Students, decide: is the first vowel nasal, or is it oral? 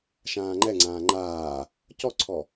nasal